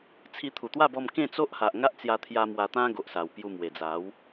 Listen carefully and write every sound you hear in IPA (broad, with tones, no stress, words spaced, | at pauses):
t͡sʰi˧ t̪ʰu˨˩t̪wa˥˧bɔ˧m kẽ˥˧t͡so˦ʔha˨ʔ ŋa˦ʔt͡sja˧t̪ʰja˧ mwa˧t̪ã˦ɡo˨ʔsa˨˩w pju˧mwe˨˩d͡za˨˦w